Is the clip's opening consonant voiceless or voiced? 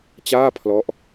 voiceless